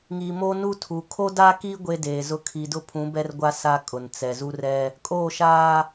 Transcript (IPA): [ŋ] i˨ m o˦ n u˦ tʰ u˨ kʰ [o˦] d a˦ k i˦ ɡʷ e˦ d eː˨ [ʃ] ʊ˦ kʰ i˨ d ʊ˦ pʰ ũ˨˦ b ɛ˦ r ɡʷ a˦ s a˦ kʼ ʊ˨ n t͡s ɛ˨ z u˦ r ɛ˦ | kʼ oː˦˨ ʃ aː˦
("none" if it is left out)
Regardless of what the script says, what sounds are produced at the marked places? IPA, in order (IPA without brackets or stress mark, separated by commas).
ŋ, o˦, z